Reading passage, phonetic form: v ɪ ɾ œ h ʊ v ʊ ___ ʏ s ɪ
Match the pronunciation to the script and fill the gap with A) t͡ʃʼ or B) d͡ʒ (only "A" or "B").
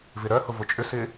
A